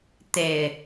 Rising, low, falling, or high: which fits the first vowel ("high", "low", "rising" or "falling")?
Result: low